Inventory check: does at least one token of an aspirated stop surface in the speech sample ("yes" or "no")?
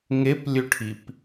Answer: yes